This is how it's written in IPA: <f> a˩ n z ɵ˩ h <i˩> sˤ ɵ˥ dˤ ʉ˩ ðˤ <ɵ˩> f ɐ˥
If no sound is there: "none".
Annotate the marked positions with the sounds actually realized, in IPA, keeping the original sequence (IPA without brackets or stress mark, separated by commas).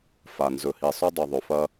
f, i˩, ɵ˩